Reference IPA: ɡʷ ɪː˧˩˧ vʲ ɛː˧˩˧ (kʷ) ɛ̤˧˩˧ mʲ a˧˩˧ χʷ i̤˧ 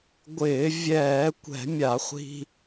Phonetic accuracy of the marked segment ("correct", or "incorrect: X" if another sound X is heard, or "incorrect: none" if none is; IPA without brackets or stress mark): correct